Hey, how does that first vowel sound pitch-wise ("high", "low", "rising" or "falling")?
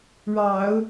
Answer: low